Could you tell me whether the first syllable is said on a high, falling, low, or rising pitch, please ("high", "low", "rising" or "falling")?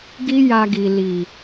high